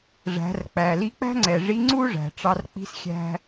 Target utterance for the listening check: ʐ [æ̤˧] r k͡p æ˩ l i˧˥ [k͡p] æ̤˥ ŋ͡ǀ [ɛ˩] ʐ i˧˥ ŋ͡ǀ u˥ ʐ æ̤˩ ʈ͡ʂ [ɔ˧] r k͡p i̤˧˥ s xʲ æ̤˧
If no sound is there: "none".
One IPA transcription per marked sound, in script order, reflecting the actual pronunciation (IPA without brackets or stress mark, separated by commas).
æ̤˩˧, k͡p, ɛ˩, ɑ˧